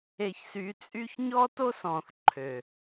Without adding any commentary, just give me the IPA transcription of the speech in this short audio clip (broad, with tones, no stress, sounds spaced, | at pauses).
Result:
e˨ ç s y˨˦ t͡sʼ y˦ ç ɲ ɔ˦ t o˦ s ɔ̃˨ θ ǃʰ ø˨